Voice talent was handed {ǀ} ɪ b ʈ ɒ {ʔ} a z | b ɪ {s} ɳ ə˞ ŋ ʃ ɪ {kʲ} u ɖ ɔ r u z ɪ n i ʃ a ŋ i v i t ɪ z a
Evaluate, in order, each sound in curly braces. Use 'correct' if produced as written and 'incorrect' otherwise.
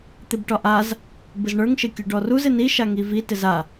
incorrect: t̪, correct, incorrect: z, correct

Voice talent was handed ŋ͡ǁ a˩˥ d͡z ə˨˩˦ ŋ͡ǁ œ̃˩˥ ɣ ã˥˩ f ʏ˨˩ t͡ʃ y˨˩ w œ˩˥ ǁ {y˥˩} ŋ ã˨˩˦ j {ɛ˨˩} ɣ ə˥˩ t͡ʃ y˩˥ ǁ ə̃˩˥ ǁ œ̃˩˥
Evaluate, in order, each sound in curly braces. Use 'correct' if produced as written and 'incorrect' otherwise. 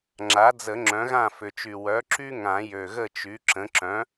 incorrect: y˦, incorrect: ø˨˩

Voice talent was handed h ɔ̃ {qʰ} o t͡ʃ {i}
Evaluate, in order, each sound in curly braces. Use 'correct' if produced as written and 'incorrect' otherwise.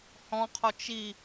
correct, correct

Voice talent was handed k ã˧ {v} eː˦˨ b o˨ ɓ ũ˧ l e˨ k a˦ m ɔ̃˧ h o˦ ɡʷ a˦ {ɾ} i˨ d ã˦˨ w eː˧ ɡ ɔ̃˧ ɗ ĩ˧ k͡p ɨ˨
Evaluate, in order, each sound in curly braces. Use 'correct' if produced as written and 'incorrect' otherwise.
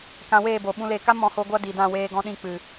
incorrect: w, incorrect: d

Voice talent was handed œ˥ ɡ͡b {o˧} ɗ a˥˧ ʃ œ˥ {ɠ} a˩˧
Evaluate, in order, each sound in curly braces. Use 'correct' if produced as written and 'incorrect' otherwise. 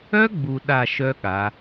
incorrect: u˧, correct

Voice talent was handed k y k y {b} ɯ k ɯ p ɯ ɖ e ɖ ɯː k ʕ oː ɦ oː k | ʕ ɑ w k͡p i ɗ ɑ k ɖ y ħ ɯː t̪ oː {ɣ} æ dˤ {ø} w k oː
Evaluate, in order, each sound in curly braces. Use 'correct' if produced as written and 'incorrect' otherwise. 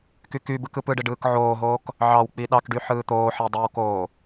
correct, incorrect: ħ, correct

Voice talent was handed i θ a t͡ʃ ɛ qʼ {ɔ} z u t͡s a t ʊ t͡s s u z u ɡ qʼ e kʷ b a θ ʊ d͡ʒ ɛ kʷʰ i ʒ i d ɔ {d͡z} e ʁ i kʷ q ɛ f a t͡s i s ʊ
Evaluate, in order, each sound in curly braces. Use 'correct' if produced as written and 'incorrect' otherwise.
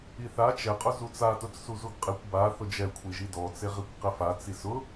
incorrect: ʊ, incorrect: t͡s

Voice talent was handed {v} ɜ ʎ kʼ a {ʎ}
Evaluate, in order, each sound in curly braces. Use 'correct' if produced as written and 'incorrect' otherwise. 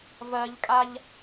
correct, correct

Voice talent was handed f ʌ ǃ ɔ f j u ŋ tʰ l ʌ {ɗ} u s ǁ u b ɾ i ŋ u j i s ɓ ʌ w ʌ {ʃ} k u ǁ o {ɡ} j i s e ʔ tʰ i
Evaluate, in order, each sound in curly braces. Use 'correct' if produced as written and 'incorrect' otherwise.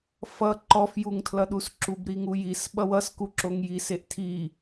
correct, incorrect: s, incorrect: ŋ

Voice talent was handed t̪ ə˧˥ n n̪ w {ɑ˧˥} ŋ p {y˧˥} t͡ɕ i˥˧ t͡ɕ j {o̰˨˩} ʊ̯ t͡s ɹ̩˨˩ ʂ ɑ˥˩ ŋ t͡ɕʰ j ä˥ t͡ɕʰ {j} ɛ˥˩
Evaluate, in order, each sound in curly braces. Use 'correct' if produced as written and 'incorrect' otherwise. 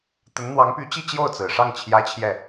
correct, correct, incorrect: o˥˩, correct

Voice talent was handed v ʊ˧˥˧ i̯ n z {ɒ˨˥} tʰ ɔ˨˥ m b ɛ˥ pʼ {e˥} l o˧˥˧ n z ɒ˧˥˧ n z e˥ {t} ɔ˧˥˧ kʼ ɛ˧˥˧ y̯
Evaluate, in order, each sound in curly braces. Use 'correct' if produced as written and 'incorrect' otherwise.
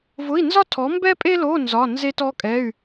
incorrect: ɒ˥, correct, correct

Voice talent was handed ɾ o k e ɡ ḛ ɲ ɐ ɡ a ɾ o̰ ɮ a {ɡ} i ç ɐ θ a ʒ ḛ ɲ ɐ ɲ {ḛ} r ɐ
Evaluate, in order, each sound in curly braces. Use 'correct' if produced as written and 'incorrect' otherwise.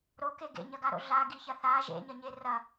correct, incorrect: e

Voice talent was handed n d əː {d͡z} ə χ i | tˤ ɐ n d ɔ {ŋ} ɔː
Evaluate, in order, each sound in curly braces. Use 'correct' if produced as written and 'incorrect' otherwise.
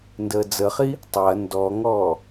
correct, correct

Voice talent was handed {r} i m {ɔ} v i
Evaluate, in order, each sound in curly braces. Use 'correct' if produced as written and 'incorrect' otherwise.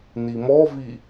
incorrect: n, correct

